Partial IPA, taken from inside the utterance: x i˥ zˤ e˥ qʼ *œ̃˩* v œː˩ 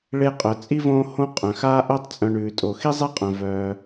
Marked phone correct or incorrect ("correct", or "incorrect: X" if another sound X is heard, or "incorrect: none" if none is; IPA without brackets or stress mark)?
correct